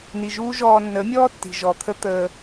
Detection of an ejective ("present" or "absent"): absent